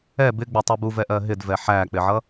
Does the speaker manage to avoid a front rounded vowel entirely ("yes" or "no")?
yes